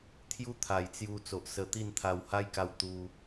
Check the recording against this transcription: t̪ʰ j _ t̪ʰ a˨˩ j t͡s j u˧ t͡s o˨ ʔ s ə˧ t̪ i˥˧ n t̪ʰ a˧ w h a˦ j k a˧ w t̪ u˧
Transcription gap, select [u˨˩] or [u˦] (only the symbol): u˦